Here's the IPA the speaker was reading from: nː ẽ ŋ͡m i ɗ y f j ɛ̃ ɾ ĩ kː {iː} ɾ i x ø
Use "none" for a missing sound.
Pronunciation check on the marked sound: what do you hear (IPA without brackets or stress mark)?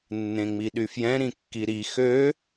i